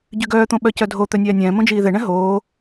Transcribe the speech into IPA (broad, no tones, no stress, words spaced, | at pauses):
ɟyɡœːt̪õ ɓœcœdʱo t̪œnʲæːnʲɛ̃ː mõd͡ʒiːðɛɳɛ̃ ɦoː